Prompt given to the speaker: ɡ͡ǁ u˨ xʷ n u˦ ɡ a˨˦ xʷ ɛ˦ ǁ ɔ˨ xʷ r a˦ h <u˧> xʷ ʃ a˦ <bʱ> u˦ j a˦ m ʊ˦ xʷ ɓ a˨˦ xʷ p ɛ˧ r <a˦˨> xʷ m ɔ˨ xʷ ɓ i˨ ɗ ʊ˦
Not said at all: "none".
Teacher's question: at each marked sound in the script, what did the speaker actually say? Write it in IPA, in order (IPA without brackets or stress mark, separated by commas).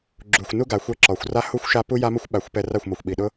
u˦, p, a˦˨